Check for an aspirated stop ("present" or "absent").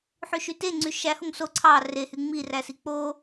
present